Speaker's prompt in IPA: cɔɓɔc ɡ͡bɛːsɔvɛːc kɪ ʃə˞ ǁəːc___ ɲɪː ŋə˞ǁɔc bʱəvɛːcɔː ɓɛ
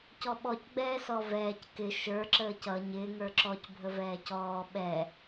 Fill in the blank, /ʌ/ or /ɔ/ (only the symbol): ʌ